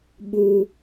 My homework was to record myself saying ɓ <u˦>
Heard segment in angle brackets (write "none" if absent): u˦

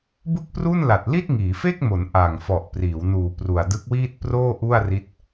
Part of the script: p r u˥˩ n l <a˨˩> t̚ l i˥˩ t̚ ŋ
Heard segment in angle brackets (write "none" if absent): a˨˩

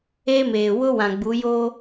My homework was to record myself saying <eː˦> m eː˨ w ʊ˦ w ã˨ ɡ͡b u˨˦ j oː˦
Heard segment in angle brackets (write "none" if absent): eː˦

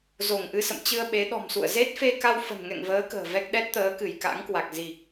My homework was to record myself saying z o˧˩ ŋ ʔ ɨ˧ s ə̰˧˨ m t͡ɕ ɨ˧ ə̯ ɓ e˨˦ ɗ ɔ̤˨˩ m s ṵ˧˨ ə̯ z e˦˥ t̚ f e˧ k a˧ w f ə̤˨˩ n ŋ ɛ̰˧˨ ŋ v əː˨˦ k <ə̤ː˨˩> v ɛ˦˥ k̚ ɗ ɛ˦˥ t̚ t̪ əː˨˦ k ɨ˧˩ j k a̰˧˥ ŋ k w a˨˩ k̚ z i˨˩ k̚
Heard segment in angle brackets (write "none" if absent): ə̤ː˨˩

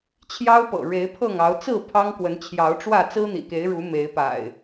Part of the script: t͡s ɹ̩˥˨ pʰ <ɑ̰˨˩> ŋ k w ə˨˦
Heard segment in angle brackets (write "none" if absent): ɑ˦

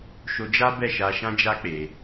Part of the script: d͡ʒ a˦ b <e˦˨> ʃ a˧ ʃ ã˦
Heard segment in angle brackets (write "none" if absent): ɛ˦˨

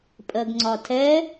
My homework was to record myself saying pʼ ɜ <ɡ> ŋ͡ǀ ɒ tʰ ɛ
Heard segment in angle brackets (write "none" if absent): ɡ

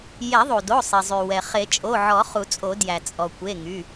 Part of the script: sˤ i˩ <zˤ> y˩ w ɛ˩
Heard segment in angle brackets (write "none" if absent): zˤ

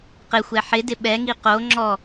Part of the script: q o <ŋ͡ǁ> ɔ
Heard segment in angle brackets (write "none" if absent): ŋ͡ǁ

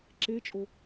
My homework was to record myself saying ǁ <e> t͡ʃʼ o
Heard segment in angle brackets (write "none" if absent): e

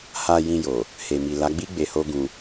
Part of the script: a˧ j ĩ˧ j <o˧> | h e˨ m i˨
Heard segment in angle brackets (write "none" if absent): o˨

